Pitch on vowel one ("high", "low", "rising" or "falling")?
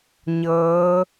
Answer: rising